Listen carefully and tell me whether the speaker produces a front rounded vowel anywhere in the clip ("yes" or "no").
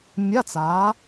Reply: no